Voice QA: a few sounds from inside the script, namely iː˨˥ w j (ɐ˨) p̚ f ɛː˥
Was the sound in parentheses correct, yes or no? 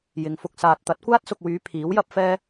no